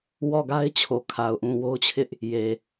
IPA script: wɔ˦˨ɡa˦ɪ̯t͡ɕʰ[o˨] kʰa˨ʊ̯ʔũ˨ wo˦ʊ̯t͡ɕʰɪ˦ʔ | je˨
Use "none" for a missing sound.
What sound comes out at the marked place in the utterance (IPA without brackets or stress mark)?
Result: o˨